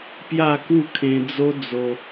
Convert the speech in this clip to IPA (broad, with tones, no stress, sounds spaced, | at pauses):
p j a˥˧ k u˥˧ kʰ ẽ˧ d͡z o˦ d͡z o˧